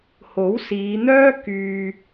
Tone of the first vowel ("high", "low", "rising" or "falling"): rising